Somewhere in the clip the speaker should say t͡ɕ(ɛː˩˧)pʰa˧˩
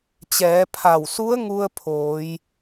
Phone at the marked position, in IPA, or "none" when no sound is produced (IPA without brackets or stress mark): ɛː˩˧